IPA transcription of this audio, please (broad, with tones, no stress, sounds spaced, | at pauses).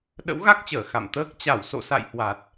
ɗ ə̰˧˥ w ɣ a˦˥ k̚ t͡ɕ əː˧˩ x a̰˧˨ m t̪ əː˦˥ k̚ t͡ɕ a˧˩ w s o̰˧˨ s a̰˧˨ j h w a˨˩ t̚